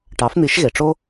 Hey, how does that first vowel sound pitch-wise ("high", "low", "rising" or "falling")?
rising